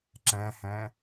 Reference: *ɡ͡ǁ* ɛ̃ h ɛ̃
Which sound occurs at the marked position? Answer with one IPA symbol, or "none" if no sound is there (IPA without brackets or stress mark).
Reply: ǁ